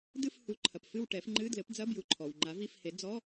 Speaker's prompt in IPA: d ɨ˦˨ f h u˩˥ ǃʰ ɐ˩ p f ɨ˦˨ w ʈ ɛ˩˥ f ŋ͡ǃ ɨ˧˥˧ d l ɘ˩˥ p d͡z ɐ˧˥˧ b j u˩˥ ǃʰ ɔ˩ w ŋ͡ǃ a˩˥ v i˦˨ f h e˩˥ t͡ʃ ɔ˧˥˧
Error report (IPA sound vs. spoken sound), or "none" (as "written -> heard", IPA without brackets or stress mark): t͡ʃ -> d͡z